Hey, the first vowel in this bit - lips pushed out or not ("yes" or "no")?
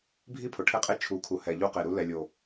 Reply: no